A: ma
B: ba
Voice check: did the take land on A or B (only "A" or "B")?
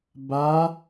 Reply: B